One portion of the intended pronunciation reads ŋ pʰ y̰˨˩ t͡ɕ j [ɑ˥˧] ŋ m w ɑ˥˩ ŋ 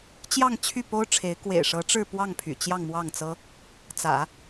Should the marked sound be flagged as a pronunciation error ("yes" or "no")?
no